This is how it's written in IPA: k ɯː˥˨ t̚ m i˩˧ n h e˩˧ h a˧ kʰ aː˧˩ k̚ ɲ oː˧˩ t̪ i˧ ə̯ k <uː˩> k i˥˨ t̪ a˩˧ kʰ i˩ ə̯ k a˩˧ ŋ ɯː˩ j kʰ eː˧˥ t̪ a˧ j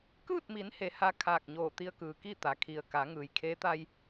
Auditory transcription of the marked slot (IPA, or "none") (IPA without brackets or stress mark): ɯː˩